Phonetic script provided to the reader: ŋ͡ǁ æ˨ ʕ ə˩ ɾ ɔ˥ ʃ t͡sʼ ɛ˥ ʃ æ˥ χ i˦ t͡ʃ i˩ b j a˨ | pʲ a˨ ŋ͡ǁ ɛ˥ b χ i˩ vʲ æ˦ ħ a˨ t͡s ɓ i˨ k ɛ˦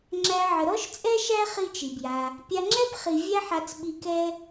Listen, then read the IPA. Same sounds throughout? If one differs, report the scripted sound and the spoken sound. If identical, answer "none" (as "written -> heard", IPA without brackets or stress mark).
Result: none